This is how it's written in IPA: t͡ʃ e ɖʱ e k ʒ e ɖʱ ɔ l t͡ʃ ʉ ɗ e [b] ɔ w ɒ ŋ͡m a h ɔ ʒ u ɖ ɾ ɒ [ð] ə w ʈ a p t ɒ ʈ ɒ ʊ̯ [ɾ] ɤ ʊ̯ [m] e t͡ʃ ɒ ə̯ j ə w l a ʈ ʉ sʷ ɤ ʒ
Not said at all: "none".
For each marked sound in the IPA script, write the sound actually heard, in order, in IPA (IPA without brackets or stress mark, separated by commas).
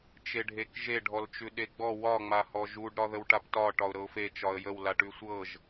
ɡ͡b, ð, ɾ, f